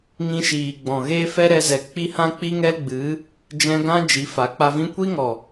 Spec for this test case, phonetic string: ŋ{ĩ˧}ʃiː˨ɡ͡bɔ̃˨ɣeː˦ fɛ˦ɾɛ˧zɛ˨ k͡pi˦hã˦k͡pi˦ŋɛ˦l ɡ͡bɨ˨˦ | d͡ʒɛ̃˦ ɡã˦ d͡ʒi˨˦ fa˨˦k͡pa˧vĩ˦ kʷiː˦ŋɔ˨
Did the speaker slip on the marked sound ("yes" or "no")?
no